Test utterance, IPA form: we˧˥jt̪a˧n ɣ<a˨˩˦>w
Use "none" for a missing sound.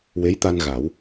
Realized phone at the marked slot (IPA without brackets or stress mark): a˨˩˦